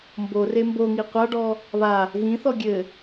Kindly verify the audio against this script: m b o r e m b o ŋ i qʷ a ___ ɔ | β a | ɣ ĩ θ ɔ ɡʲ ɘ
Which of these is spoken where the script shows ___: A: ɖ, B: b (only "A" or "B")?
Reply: A